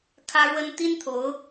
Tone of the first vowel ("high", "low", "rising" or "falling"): high